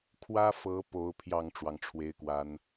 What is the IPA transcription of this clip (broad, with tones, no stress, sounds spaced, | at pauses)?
kʰ w ä˦ f ɤ˨˦ p o˨˦ ʊ̯ pʰ j ɑ˥˨ ŋ ʈ͡ʂ w ɑ˩ ŋ ʈ͡ʂʰ w e˨˦ ɪ̯ k w a˨˦ n